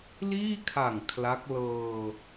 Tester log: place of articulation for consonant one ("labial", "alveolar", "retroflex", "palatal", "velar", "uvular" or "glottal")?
alveolar